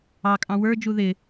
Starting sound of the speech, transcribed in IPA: ɑ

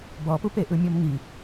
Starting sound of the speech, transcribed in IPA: b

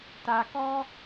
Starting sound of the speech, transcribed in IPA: t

